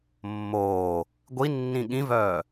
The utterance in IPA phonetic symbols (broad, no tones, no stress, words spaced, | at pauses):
mːoː | ɡʷinːĩ ɠĩvœː